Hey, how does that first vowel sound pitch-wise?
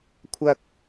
low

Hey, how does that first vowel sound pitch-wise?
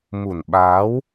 low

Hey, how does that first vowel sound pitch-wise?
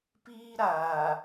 high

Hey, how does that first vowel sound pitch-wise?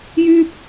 high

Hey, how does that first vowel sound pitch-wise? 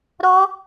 high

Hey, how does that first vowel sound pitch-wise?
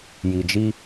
low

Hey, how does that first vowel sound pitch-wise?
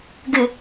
low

